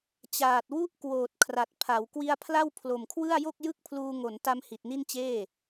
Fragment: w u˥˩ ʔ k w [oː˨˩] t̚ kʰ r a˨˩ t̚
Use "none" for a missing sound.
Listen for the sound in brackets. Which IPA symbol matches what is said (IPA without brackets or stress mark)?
oː˨˩